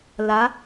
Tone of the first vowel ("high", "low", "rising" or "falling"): rising